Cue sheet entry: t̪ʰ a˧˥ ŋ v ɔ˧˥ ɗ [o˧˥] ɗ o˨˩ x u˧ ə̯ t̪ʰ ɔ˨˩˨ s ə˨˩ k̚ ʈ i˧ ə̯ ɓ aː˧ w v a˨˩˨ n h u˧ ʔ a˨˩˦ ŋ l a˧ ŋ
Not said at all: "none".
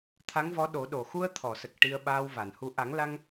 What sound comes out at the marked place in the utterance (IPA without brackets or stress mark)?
o˨˩˦